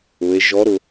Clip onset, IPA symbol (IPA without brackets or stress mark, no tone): ʊ